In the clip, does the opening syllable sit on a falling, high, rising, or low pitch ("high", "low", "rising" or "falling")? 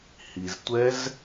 low